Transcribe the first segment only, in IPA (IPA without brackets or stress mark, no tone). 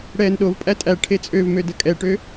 ɽ